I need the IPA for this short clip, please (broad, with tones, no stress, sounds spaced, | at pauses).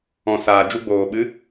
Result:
ɔ̃˨ s aː˨ d͡ʒ u˧ ɡ͡b oː˨ ɓ ɨ˨˦